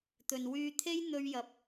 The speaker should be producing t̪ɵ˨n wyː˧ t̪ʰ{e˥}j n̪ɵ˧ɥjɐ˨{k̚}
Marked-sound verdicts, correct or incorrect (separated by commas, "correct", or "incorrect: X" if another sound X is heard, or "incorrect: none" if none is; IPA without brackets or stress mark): correct, incorrect: p̚